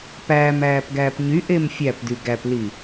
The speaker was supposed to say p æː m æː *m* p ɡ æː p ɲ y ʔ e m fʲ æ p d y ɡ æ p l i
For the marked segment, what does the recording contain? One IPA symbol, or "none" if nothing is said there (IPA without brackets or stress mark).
none